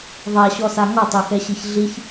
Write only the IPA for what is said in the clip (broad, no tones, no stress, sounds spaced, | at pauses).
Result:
ðˤ a ɕ ɔ s a ŋ ɔ tˤ o x ɛ ɕ i ç ɮ i ç